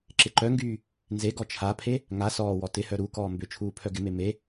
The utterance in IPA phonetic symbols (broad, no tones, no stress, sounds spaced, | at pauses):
ǁ ɪ ǃ œ ŋ ɡ yː | n z e ɡ ɔ t͡ʃʰ a pʰ e | ŋ a s ɔː w ɔ t ɪ h œ ɾ u k ɔː m b ʏ t͡ʃʰ uː pʰ œ ɡ ɪ m e m e